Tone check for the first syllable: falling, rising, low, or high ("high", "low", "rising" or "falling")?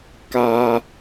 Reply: high